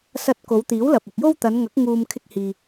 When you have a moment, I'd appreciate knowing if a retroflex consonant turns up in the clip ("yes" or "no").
no